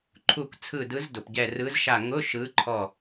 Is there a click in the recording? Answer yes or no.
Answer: yes